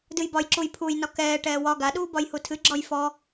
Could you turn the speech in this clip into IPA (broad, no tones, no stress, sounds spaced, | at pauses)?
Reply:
d ɨ j b ɒ j ǁ u j pʰ u j n ɒ k ɛː ʈ ɛː w ɒ ɡ a ɗ uː b ɒ j h u tʰ ɨ ɡ͡ǁ ɔ j f ɔ